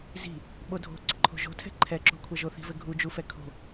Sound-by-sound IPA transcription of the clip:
z i̤ | ɓ o dʱ o̤ ǀ ɪ ǃʰ o̤ ʒ o̤ tʰ ɛ̤ ǃʰ ɛ ǁ o̤ kʷʰ ɐ ʒ o θ i̤ v ɘ ɡʱ u d͡ʒ u f ɛ kʰ o̤

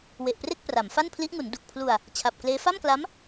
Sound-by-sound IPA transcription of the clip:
w e˨˩ ʔ p r e˥˩ k̚ p r a˩˦ m f a˥˩ n pʰ l i˦˥ ʔ ŋ u˩˦ n d u˨˩ k̚ pʰ l u˧ a̯ | t͡ɕʰ a˨˩ p̚ k l eː˦˥ f a˥˩ m k l a˦˥ m

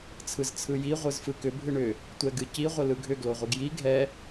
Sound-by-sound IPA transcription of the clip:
t͡sʰ ɯ z t͡sʰ ɯ j i ʁʷ ɯ z f ɯ k ʏ bʱ ɨ ɳ ʏ | tʷ ɛ ɡ ɨ c i ʁʷ ə l ɯ ɡʱ ʏ ɡ l o ʁʷ ɯ ɡ j i ɡʱ ɛ

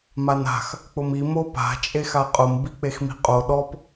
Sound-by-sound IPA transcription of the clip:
m a n a̤ x | k͡p ʊ m i m o p a̤ t͡ʃʼ e x a qʼ ʊ m b i k͡p e x m i̤ qʼ o ɗ ɔ p

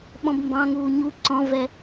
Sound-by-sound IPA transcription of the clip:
ɓ ɔ̃ b m b ɑ̃ ŋ uː ɲ u ǀ ɔ̃ v ɛ

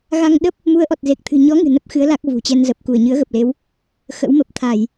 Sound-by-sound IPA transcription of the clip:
ɣ a˧ ŋ ɗ ə˦˥ p̚ | m u˨˦ ə̯ ʔ ɔ˨˩ t̚ z e˨˩ k̚ t̪ʰ ɨ̤˨˩ ɲ ɔ˨˦ ŋ ɨ̤˨˩ n ə˦˥ p̚ x ɨ˨˦ ə̯ l a˦˥ k̚ v ṳ˨˩ t͡ɕ ɛ˧ n z ə˨˩ p̚ k u˧˩ ə̯ ɲ ɨ˨˦ ə̯ ɣ ə˨˩ p̚ l e˨˦ w | x ə̰˧˥ w m ə˨˩ p̚ t̪ʰ a˧˩˨ j

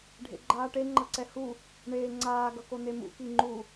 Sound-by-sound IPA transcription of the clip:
ɖʱ ḛ ɡ͡ǃ aː ʈ e ŋ͡ǃ ʌ ǀ ɛ h u | ɳ eː ŋ͡ǀ aː ɡ ʌ k o n̪ e m ṵ k i ŋ͡ǃ u

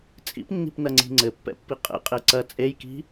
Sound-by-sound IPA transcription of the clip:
t͡sʼ ḭ p nː i̤ p n ɐ ŋ͡ǀ i̤ ŋ͡ǀ ɘ pː ɛ̰ pː i qʼ ɛ̰ qʼ e ǀ ɐ t͡sʼ e j k i̤

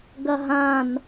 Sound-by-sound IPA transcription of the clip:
ɡ ɐ ɦ ã n

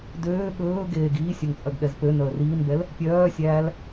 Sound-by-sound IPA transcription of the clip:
d øː ɠ ɵː ɡ eː ɡ iː sʲ œ ŋ t͡sʼ œ ɡ ɠ ɛ z p ø n œ ə̯ r iː n b ɛ l | pʲ œː sʲ æː l

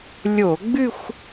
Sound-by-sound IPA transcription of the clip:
lʲ o˧˩˧ ɡ͡b ɨ˥˧ xʷ

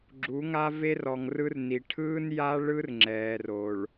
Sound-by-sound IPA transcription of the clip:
ɡ͡ǁ u˨˦ ŋ a˦ v e˦ r ɔ˨ ŋ r ɯ˦ r n i˨ ʈʰ ɯː˦ n j a˦ ɭ ɯ˦ r ŋ͡ǁ ɛː˨ r o˨ ɭ

